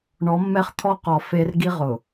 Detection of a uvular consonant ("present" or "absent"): present